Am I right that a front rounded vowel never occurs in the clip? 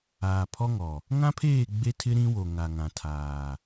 yes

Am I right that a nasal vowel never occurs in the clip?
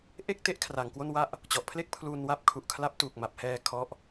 yes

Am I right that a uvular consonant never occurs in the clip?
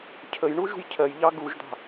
yes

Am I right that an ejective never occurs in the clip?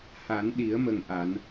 yes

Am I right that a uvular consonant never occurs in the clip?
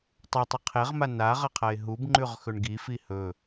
no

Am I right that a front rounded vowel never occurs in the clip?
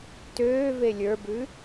no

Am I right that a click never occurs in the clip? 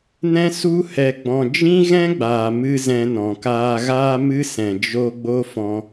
yes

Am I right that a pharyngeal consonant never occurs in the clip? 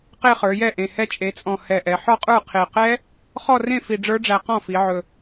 no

